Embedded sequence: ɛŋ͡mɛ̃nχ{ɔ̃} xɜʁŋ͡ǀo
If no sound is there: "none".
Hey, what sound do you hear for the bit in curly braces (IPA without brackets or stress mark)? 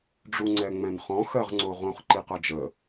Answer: ɔ̃